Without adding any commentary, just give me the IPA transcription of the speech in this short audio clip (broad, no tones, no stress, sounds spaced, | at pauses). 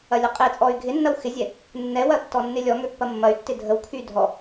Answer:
ɐ lʲ ə qʼ e t͡sʼ ɔ y̯ ɡʱ ɪ nː ɐ w x ɪ zʲ ɛ | nː ɛ w ɐ tː ɔ nː ɪ lʲ ɔ ŋ ø pː ɐ mː ɐ y̯ tː ɪ dʱ ə w kʰ y dʱ ɔ